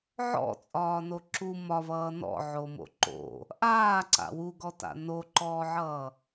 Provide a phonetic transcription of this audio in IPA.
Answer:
ʕɔ̰t͡sʼɒːno ǁu mɒvʌː nɔ̰ʕomo̰ ǃo̰ | ʔaːǀa̰ wuɡɔta̰ noǃɔːʕʌː

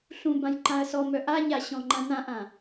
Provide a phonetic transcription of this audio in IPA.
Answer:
ɬũbãj ǃãɐ̯sɔmœ ʔaɲa ɕɔ̃ŋ͡ǃãnãʔã

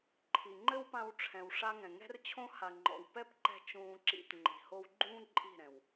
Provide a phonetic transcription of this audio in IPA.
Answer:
ǃʰi˨ŋ͡ǃɘ˦wpã˧wʈ͡ʂʰɛ̃˨w ʂa˦ŋɛ̃˨ ŋɛ̤˦rt͡ɕʰõ˦ ha˨ŋ͡ǃɔ̰˨w pɛ˦pǃɛ̤˧ t͡ʃũː˧ǁḭ˧tŋ͡ǃi̤˨ ho˧wɡ͡ǃũː˦ ǃʼi̤˦˨ɾɛ̃˨w

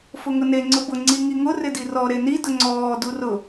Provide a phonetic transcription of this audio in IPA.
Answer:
fʊŋʊne ŋ͡ǀʊbʊ ŋ͡ǀiŋiŋʊ rɪdirɔ ɾeni dʊŋ͡ǀɔː durʊ

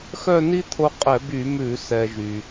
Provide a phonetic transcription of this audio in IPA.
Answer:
xœ˥˧ni˥t̪ʰo˧ qʼɛ˧˩˧by˧˩˧mʉ˧˩˧ sɛ˩ ʒy˩

